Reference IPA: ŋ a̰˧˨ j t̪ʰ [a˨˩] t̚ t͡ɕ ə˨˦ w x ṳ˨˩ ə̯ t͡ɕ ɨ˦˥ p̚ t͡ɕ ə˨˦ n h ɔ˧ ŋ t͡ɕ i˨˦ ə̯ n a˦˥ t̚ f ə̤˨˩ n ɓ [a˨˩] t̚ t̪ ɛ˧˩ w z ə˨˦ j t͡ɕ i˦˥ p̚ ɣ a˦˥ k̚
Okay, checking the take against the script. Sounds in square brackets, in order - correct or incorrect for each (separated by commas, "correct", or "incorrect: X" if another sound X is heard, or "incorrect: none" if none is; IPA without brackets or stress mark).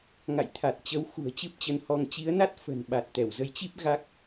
correct, correct